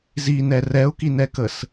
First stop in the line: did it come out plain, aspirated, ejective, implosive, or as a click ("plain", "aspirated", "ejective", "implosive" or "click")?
plain